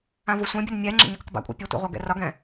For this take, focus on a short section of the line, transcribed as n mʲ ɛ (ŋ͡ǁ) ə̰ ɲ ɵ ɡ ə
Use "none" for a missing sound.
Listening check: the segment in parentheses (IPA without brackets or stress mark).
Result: ŋ͡ǁ